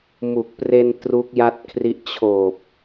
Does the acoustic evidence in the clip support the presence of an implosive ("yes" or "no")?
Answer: no